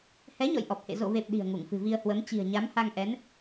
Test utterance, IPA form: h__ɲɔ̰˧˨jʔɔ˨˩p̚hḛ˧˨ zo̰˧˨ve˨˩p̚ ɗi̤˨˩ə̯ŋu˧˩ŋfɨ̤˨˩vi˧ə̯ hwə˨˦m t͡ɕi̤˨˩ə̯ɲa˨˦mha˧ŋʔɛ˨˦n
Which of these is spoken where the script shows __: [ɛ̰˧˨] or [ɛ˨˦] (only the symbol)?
ɛ˨˦